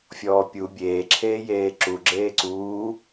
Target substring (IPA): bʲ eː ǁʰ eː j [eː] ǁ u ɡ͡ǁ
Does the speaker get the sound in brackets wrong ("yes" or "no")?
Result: no